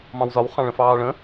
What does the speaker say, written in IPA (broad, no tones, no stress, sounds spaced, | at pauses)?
m ɑ̃ w z ɒ w χ ɑ̃ ɭ ə̃ f ɑː ɭ ə̃